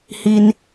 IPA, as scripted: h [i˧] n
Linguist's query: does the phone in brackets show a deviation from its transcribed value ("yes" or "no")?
no